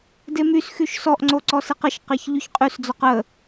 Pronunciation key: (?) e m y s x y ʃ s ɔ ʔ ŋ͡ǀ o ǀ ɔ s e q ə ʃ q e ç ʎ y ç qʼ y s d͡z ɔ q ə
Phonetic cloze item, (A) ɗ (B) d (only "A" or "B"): B